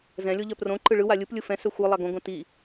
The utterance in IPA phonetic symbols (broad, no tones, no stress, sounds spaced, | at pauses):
z ɛ̃ lʲ o ʎ œ p r õ ǃ ɯ ɭ ɯ w a lʲ ɯ p lʲ ɯ f ɛ̃ s œ xʷ ɯ lˠ a ɡ õ ɡ õ t i